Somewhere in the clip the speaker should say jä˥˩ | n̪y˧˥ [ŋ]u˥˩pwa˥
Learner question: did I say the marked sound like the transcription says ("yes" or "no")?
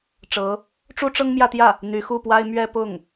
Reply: no